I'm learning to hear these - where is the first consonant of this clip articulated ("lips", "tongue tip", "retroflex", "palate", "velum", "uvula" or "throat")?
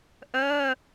throat